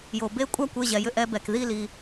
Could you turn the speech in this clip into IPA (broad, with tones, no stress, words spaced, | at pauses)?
jo˩be˥˩kʷʼa˥˩kʷ e˩˧˩ʑɛ˩jʏ˥˩ʔ ɛ˧bɛ˩k ði˥˩li˩